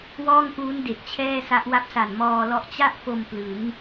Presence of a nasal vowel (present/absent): absent